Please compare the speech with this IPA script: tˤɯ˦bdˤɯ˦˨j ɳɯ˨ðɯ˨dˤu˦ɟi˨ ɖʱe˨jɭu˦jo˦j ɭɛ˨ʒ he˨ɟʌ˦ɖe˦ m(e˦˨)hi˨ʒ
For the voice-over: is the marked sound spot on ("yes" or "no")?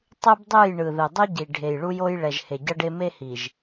no